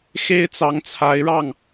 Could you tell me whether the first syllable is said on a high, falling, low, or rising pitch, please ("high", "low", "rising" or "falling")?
high